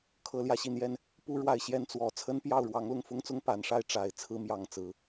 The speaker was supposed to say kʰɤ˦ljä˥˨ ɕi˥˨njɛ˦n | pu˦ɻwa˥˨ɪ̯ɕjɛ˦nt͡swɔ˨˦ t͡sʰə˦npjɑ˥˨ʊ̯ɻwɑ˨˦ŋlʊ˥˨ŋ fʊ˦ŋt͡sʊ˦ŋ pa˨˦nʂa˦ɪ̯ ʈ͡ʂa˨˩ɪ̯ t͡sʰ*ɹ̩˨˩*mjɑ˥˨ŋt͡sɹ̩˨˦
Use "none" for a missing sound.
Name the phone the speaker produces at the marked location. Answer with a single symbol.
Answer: ɹ̩˦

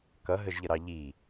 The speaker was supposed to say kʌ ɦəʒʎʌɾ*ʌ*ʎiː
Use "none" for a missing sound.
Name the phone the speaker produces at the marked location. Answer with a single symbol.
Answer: ɑ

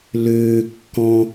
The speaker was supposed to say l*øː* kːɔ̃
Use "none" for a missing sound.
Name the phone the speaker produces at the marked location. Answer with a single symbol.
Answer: øː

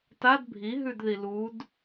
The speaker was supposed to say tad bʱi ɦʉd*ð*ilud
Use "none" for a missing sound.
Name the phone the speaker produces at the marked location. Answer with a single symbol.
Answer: ð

